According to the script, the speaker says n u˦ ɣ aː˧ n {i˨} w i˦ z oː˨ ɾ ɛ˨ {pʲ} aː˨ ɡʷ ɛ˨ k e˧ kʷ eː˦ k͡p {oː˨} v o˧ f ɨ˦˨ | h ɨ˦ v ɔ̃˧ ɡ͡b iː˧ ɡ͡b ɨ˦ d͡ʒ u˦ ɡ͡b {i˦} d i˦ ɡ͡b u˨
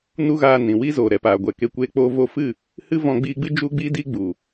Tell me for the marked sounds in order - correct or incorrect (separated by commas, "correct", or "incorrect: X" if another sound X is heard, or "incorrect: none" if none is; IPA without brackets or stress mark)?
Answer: incorrect: ĩ˨, incorrect: p, incorrect: oː˦, correct